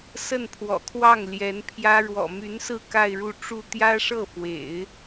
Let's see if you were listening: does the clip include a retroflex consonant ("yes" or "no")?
yes